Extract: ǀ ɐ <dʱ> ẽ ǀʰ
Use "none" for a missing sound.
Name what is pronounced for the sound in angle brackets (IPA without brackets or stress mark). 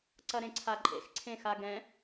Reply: ɾ